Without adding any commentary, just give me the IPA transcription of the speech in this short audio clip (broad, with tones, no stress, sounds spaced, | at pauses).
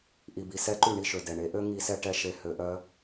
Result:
ʔ i˨ b i˨ s ɛ˦ ǃ y˦˨ ɳ i˦ ʃ ø˨ d ɛ˨ ɳ e˨˦ ʔ ø˦ ŋ i˦ s ɛ˦ ʈ ɛ˦ ʃ e˨ h ø˨ ʔ œ˦